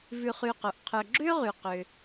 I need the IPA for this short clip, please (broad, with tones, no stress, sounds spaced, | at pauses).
v ʉ˨ χ y˨ q o˩ ʔ qʰ œ˨ ɡ͡ǁ ø˥ ʁ y˩ q ø˩